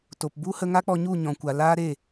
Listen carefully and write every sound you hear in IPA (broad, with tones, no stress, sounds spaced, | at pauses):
t o˨ p b u˦ h ə˧ ŋ a˦ k͡p ɔ˧ ɲ u˦˨ ɲ ɔ̃˨ kʷ a˨ l aː˦ ɾ e˦˨